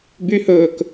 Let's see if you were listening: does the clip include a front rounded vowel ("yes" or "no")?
yes